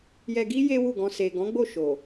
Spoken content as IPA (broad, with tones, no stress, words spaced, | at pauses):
jɛ˧ɡi˦ je˦wu˦˨ɡɔ̃˧ se˨ɡɔ̃˨˦ɡ͡bo˦˨ ʃo˨